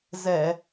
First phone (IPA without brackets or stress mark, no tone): z